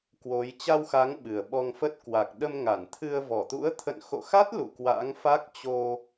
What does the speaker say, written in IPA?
kwo˨˦j t͡ɕa˧wxa˨˦ŋ ɓɨ˨˩ə̯ɓɔ˧ŋfə˦˥t̚ kwa˨˩k̚ɗə˧m ŋa˧˩nt̪ʰɨ˧ə̯vɔ˧˩ t̪ṵ˧˥ə̯t̪ʰə̰˧˨nxo̰˧˨xa˦˥t̚ lṵ˧˨kwa̰˧˥ŋ fa˦˥k̚ t͡ɕo˧

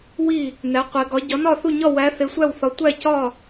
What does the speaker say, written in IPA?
wi˦˨ | næ˨˦qʷe˨˦ɡɒ˨˦ ɟɒ˨˦nɒ˦˨θu˦˨ɲɒ˦˨ wæ˨˦ θe˨˦sʷæ˦˨wθɒ˨˦ tʷæ˦˨cɒ˦˨

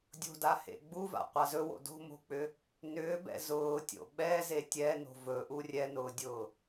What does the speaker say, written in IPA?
dʲo̤dahḛ ɡ͡buva̰qʷa zɵwo̰ do̤mo̤k͡pʏ | nʏːbɛ̰ zʊːtʲo̰ ɓɛze tʲɛno̤ vɵʔu rʲɛnʊːdʲʊː

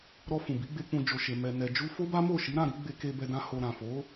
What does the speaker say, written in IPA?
ɾɔ˧fũ˨bi˨˦ ɡ͡be˧k͡pũ˧ d͡ʒo˨ ʃe˨ mɛ˨nɛ˨d͡ʒu˧ fo˦ba˦ mo˦˨ʃi˨˦ɾã˦˨ɾi˨˦ ɡ͡be˧ke˧bɛ˧dã˧ ho˨ɾã˨fo˨˦

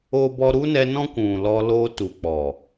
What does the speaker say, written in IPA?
o˦bɔ˦ ɾu˦nɛ˧ nɔ̃˦kʷũ˨lɔ˧ lo˧tu˨k͡pɔ˨

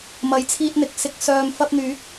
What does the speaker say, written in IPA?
mɐ˨˥jt͡sʰiː˧t̚n̪ɪ˨˥k̚sɪ˨˥k̚ sœː˨mfɐ˧p̚ n̪yː˨˥k̚

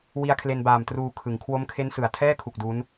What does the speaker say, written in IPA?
wi˧a̯kʰle˧nbaː˨˩m truː˧kʰɯ˩˦ŋ kʰwo˦˥mkʰe˦˥n sɯ˨˩a̯ tʰɛː˥˩kʰu˨˩k̚ du˦˥n

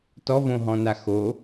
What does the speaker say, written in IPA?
tɔvõɦɔ̃na xo

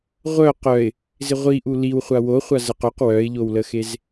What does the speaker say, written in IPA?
ʁʷœ qœɪ̯ | zɪʁʷiʔu liwχʷa wo χʷazəqoq wœɪ̯ʎowləxez

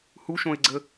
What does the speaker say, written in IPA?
huʃõɪ̯ɡ͡ǀə

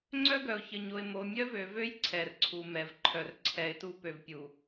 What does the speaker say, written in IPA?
ŋ͡ǀœ˦ɡœ˨ʊ̯çə˨ɲo˨ɪ̯ mo˨mʲœ˦vø˨vø˦j ǀʰɛ˨rǀʰu˨ mɛ˨vǃʰœ˨r ǀʰɛ˨ɪ̯tu˦ pø˨vpʲu˨

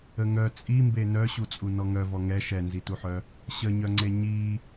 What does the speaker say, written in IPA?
əŋœ t͡sʼimbe nœɕut͡sʼu nɔŋœ vɔŋɛ ʃɛnzituħœ | ɕəɲœŋ͡ǀe ɲi

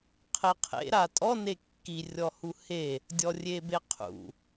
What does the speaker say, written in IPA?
qʰeqʰḛ ɾatʼɔ nekːi rʲɔhuhe | dʲɔrʲebeqʰṵ

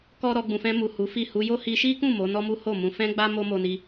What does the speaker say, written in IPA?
kɔ˦ ɾɔ˧ ɡ͡bũ˨fɛ̃˧mu˨ hu˨˦fi˦˨ hu˧jo˦ hi˧ʃi˦kũ˦˨ mo˨˦nɔ˦mu˦ ho˦˨mũ˧ fɛ̃˦ɡ͡ba˦ mo˦ mo˧ni˧

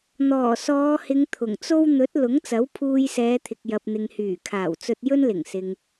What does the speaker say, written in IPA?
n̪ɔː˨˩sɔː˨˧hɪ˨˧ŋ t̪ʰʊ˨˩ŋt͡so˥w n̪ɵ˨˥t̚ lʊ˨˥ŋt͡sɐ˨˥w pʰuː˧jsɛː˨˧t̪ʰɪ˨k̚ jɐ˨p̚n̪ɪ˨ŋ hyː˨˩kʰaː˨˩wt͡sɵ˧t̚ jɵ˥nlɪ˨˩ŋsɪ˨ŋ

